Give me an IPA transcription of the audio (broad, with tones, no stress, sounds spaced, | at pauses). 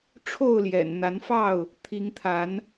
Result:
ʈ͡ʂʰ o˥˨ ʊ̯ l j ɛ̰˨˩ n n̪ a˨˦ n f ɑ˥˨ ʊ̯ | t̪ʰ i˨˦ ŋ t̪ʰ a˨˦ n